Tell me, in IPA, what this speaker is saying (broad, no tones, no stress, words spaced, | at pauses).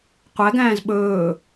qʷæɡæ̃ːz ɓɵː